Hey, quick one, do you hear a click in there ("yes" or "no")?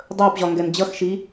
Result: no